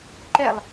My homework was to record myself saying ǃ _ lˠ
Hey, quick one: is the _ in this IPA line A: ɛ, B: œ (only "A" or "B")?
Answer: A